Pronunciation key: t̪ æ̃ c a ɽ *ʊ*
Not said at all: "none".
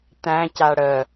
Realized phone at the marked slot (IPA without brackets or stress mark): ə